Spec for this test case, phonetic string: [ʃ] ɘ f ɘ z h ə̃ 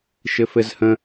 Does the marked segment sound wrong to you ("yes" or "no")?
no